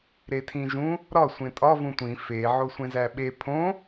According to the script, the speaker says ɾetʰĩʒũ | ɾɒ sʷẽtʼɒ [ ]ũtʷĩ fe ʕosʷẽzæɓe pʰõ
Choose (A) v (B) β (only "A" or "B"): A